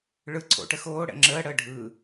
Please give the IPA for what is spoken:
ɭ ɯ ǀʰ o̰ ʈ ə x oː ɽ ɛ̰ ŋ͡ǁ əː ɽ əː ɖʱ ɯː

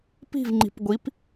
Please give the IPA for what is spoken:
p i̤ v ŋ͡ǃ i̤ p ɡʷ i p

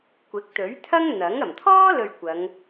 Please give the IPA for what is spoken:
kʷ ɪ˨˥ k̚ t̪ ɵ˨˥ ɥ t̪ʰ ɐ˥ ŋ n̪ ɐ˨˥ ŋ ɐ˨˩ m t̪ʰ ɔː˥ l ɵ˨ ɥ kʷ ɐ˨˧ ŋ

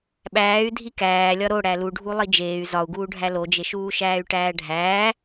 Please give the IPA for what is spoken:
ɓ æː y̯ dʱ i k æː lʲ ɒ ɾ o ɽ æ l u ɖʱ u lˠ i d͡ʒ eː y̯ z ɒ u̯ ɡ uː ɖʱ æ l o d͡ʒ e ʃ uː ʃ æː y̯ ʈ æː ɖʱ æː

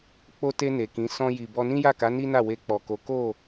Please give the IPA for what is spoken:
k͡p o˧ t e˧ n e˨ k ĩ˨˦ s ɔ̃˧ j i˨ b ɔ˧ n ĩ˦ j a˦˨ k a˨˦ n i˦ n a˦˨ w e˧ k͡p ɔ˨ k o˨˦ k o˦˨

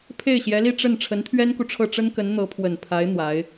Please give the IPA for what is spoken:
pʰ e˥˩ ɪ̯ ɕ j ɛ˧˥ l i˥˧ ʈ͡ʂ ə˥˩ n ʈ͡ʂʰ ə˧˥ n t̪ʰ ɥ ɛ˥ n k u˨ ʈ͡ʂʰ ɤ˥˩ ʈ͡ʂ ə˥ n k ə˧˥ n n̪ ɤ˧˥ pʰ w ə˨˩ n pʰ a˧˥ ɪ̯ n̪ w a˧˥ ɪ̯

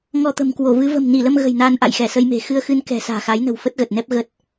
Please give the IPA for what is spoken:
ŋ ɔ˧ t̪ ə̤˨˩ m k w o˧˩ v ɨ˨˦ v ə̤˨˩ m n i˧˩ l ə˧ m ɣ ə̤˨˩ j n aː˧ n ʔ a̰˧˨ j x ɛ˧˩ s ə˧ j m e̤˨˩ x ɨ˧ ə̯ x ɨ˧ n k ɛ̤˨˩ s a̤ː˨˩ x a˨˦ j n ə̤˨˩ w f ə˦˥ t̚ ɣ ə˨˩ t̚ n ɛ˦˥ p̚ ɣ ə˦˥ t̚

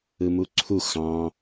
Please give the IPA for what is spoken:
ɯ m u ǀʰ u x ɑ̃

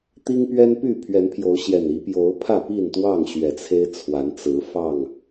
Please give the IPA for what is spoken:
t̪ i˦ ŋ p ɥ ɛ˦ n p y˥˨ pʰ ɥ ɛ˨˦ n pʰ j o˨˦ ʊ̯ ɕ j ɛ˨˩ n i˨˦ p j o˨˦ ʊ̯ pʰ ä˥˨ p i˥˨ n t̪ w ɑ˥˨ ŋ ɕ ɥ ɛ˨˩ t͡sʰ e˦ ɪ̯ t͡sʰ w a˨˦ n t͡s ɹ̩˨˦ f ɑ˥˨ ŋ

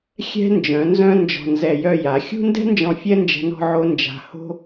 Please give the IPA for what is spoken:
xʲ ɛ̤˧ n d͡ʒ œ̃˩˧ n z œ̃˧ n d͡ʒ ɔ̤˧˩ n z ɛ˧˩ j œ˥˧ j a˩˧ xʲ ṳ˥ n d ɛ̤˥ n d͡ʒ ɔ̃˧˩ fʲ ɛ˥ n d͡ʒ ɛ̤˧ n ɔ̤˥˧ ʕ o˥ n d͡ʒ a̤˧˩ h o̤˥

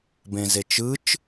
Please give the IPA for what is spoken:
b ẽ z e t͡ʃ ɯ t͡ʃ

